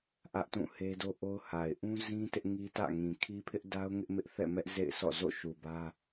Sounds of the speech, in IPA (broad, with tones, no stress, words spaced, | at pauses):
ʔä˦ʔtũ˦˨ he˦do˦ʔo˦ʊ̯ha˨ɪ̯ ʔũ˦zĩ˦ tɪ˦ʔŋi˦tä̰˦˨ŋĩ˨ kʰi˦pʰɪ˦ʔ da˦ʊ̯ ŋɪ˦ʔmɪ˦ʔθɛ̰˦˨mɛ˦ʔ zḛ˦˨ɪ̯sɔ̰˦˨ zo̰˦˨ʃu˨bä˦